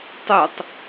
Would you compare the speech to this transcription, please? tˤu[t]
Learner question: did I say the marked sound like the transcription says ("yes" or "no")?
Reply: no